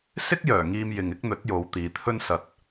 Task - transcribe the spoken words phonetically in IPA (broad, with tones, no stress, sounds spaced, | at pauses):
s ɪ˥ k̚ j œː˨˩ ŋ iː˧ m j ɪ˨ ŋ ɪ˥ k̚ n̪ ɵ˨˥ t̚ j o˨˧ w t̪ iː˨ t̪ʰ ɵ˥ n s ɐ˨ t̚